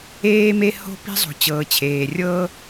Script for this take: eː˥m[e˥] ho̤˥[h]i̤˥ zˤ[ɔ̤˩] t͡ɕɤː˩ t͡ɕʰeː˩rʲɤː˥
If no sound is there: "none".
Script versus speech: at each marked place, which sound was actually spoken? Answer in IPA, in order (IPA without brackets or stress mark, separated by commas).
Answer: e˥, p, o̤˩